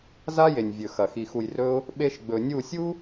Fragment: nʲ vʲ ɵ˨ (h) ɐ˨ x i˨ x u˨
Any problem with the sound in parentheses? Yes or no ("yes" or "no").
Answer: yes